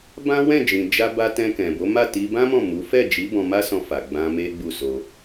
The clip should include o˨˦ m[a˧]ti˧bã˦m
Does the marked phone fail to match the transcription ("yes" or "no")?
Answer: yes